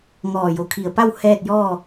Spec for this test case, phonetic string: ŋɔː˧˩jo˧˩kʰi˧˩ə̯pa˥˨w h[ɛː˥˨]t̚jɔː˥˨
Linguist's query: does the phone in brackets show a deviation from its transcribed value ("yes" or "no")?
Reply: no